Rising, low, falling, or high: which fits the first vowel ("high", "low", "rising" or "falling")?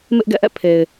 high